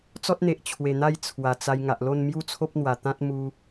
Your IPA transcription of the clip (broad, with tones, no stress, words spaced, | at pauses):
t͡sɔ˦t̚n̪e˨ʔ t͡ɕʰwe˨˩n̪a˥˧j t͡sʰwa˨˩t͡sa˧j ŋa˨ʔlo˥˧n mju˥˧t͡sʰo˦p̚n̪wa˨˩t̪ã˦t̚ mu˦